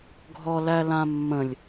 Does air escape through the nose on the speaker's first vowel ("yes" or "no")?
no